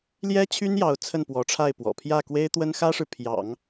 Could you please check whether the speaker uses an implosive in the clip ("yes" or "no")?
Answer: no